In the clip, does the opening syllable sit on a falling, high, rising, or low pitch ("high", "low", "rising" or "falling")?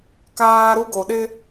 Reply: high